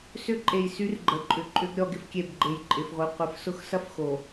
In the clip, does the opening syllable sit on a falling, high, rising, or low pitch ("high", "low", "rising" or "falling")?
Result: high